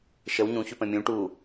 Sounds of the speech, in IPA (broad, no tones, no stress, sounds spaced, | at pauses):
ʃ ə w ɲ ũ ç ʉ p ə̃ mʲ ũ ʈ u